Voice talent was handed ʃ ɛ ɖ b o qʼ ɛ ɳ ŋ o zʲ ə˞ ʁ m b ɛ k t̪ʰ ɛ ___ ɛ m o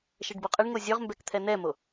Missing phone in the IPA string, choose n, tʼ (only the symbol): n